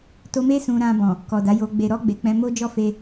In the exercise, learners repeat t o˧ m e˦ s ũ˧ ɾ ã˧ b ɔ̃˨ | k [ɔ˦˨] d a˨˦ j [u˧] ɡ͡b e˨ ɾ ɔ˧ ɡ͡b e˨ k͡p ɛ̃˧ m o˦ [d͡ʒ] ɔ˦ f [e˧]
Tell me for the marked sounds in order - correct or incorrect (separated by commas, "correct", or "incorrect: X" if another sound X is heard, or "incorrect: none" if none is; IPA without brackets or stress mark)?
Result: incorrect: ɔ˨, incorrect: o˧, correct, correct